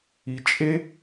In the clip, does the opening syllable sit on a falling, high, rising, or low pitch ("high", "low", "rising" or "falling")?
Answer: low